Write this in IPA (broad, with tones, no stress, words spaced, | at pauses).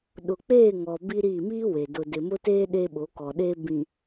ɗʊ˨k͡peː˦˨ŋɔ˨ bi˦ɾiː˦˨ miː˦we˨ dʊ˨dɪ˨mʊ˦teː˦ ɗe˦ɓo˨˦ kɔ˨ɗeː˦bĩ˨